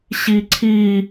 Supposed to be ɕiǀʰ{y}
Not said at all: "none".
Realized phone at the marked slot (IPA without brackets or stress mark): i